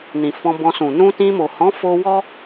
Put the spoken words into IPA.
nĩ˨fɔ̃˧bɔ̃˧sũ˨ nũ˧tĩ˧mo˨hɔ̃˨˦ fo˦ wɔ˦

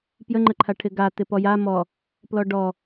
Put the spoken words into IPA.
pjəŋ͡ǃəǃʰa ʈʰɪɡa tɪpɔja mɔ | plɔɖɔ

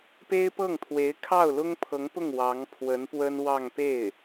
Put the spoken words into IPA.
pe˥ɪ̯pɤ˥˩ŋt̪ʰwe˧˥ɪ̯ kʰɑ˥˩ʊ̯lʊ˥ŋpʰɤ˧˥ŋpʊ˥˩ŋ wɑ˧˥ŋpʰwə˧˥npwə˥nwɑ˥˧ŋ pe˥˩ɪ̯

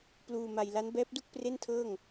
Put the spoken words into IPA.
pluː˧ma˧j la˦˥n bɛː˦˥p̚du˥˩k̚ pre˥˩ntʰɤː˥˩ŋ

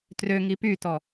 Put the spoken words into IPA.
trø ŋipytɔ

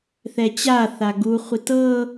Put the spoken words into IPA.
θɛt͡ɕaθa ɡuχʷi tɤ

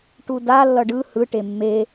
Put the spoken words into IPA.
ʈuda lːʌɖɯ hɯ ʈemːe

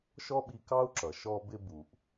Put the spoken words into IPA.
ʃɔ˥ɓi˧ kɑ˥u̯ǁʌ˩ ʃɔ˧bɪ˧ bu˩ʔ

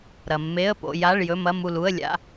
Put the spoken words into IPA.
ɾɐ˨mːe˧˥˧ə̯ po̰˨ ja˧˥˧ɭjɵ˧˥˧mɐ˧˥˧ mu˦˨lu˧˥˧ə̯lʲa̰˧˥˧

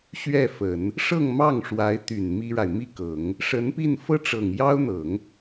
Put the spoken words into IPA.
ɕɥɛ˥˩fə˨˩˦n | ʂɤ˥˧ŋmɑ˥˩ŋʂwa˧˥ɪ̯ t̪y˨˩n mi˥ɻa˨ɪ̯ mi˥˩kɤ˨˩˦ŋ | ʂə˧˥npi˥˧n fɤ˥˩ʈ͡ʂɤ˨˩ŋ jɑ˥ʊ̯n̪ɤ˨˩˦ŋ

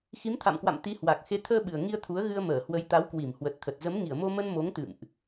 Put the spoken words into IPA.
xi˨˦mt̪ʰa̰˧˨mkwa̰˧˨m t̪i˨˦hwa˨˩k̚ xe˨˦t̪ʰəː˧ɓɨ˨˩ə̯ ŋi˧ə̯t̪ʰu˨˦ə̯ɣɨ˧ə̯ məː˧˩hwə˨˦j t̪a˨˦wkwi˧˩m hwə˨˩t̚t̪ʰə˨˩t̚ zə˨˦mŋi˧˩ə̯mo˧mə˧n mo˨˦ŋt̪ɨ̰˧˨mʔ

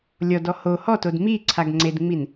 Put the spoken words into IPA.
lʲɔdɔ ho hɔtod mi ǀʰaɡŋ͡ǀedŋ͡min

